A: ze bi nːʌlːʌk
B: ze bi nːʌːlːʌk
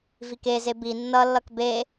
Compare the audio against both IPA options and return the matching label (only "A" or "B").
A